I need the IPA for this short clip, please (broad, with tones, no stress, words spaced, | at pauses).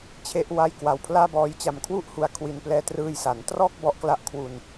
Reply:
t͡ɕʰe˥˩ʔwa˥˩j kwa˧wpʰlaː˥˩ bɔː˦˥jt͡ɕa˧m kʰwu˥˩ʔ hu˧a̯kʰwi˧nplɛː˧ trɯː˧jsa˩˦ntrɔː˥˩k̚ bɔ˦˥ʔkla˥˩ʔ kʰwu˧n